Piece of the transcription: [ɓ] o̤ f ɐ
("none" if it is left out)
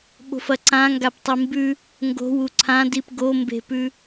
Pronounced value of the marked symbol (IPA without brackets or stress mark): ɓ